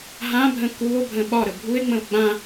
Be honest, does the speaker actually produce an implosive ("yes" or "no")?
yes